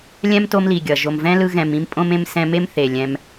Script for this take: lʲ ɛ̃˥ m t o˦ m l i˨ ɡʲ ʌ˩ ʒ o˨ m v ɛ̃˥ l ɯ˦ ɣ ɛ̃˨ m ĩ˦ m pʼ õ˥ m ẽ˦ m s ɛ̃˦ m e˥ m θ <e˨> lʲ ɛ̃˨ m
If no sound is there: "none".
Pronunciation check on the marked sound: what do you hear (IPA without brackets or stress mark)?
e˩